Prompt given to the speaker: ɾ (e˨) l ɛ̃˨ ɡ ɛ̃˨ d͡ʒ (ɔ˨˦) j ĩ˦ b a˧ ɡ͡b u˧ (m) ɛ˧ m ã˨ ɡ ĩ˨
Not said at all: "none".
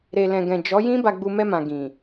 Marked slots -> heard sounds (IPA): e˨, ɔ˨˦, m

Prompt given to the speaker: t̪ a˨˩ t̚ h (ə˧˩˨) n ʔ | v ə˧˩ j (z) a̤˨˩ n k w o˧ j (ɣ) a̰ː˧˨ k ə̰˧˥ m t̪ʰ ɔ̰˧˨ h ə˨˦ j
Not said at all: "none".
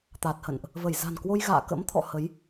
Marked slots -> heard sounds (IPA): ə̰˧˨, z, ɣ

